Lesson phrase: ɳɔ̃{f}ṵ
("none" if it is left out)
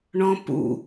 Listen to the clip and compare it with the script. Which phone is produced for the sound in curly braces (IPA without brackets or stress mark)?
p